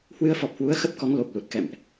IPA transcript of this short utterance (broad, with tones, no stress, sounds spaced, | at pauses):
h w ɨ˧ ə̯ f ɔ˨˩ p̚ h w u˨˦ ə̯ x ə˦˥ p̚ k ɔ˨˦ ŋ l o˨˩ p̚ l u˨˩ t̚ k ɛ̰˧˨ m ʔ